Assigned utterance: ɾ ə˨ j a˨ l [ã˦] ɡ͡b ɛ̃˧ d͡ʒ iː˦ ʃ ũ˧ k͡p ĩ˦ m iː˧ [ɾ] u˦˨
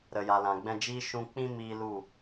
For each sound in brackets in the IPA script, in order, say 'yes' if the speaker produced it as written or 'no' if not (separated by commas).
no, no